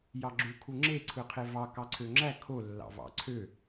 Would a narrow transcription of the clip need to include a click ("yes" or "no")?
yes